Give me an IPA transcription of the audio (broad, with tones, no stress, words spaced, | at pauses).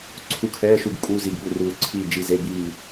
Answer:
ǀʰu˧˥˧kʰɛː˧˥˧ʃu˦˨ɡ kʼuː˧˥˧zi˦˨ɡɠu˦˨ruː˦˨ ǀʰiː˦˨d͡ʒi˦˨ze˧˥˧ biː˦˨